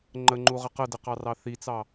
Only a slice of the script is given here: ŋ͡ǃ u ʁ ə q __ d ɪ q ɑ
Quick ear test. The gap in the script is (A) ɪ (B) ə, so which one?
B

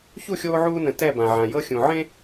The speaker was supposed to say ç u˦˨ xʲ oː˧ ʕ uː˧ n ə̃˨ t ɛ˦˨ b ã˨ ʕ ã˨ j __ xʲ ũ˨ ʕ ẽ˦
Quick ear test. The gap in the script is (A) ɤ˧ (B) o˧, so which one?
A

